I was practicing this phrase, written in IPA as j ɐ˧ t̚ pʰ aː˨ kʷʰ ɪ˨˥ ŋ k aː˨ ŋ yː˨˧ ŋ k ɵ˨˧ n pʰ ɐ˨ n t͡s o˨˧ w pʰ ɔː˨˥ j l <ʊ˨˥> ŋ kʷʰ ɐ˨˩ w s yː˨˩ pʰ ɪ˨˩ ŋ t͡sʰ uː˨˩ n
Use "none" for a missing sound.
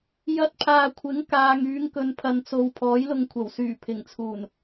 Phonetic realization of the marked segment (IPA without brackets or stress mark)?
ʊ˧